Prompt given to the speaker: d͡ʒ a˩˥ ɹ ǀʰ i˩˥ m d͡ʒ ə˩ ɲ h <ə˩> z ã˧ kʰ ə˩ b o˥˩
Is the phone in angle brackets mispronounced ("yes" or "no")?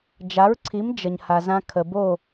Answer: yes